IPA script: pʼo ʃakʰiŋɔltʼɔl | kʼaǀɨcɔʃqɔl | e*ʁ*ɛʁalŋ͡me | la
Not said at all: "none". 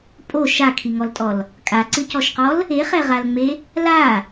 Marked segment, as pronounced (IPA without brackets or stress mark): χ